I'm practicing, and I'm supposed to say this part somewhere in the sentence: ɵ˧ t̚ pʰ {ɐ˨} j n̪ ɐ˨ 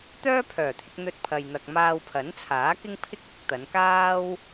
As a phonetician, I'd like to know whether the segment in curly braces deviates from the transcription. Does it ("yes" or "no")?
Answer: no